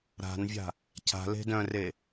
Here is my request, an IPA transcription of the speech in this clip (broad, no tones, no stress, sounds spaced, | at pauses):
ɾ a̤ n vʲ a̤ | cʰ a̤ l e̤ d œ̃ r e